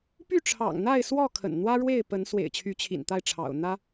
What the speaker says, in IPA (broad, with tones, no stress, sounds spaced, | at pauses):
p y˥˨ ʈ͡ʂʰ ɑ̰˨˩ ŋ n̪ a˥˨ ɪ̯ s w ɔ˥˨ kʰ ə̰˨˩ n n̪ w ä˦ ɻ w e˥˨ ɪ̯ p ə˨˦ n s w ḛ˨˩ ɪ̯ t͡ɕʰ y˨˦ t͡ɕʰ ḭ˨˩ n t̪ a˥˨ ɪ̯ ʈ͡ʂʰ ɑ̰˨˩ ʊ̯ n̪ ä˦